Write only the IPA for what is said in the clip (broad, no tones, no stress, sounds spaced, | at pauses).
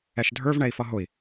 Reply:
ɛ ʃ dʱ ə˞ v ɳ ɛ i̯ f ʌ ɦ ʊ i̯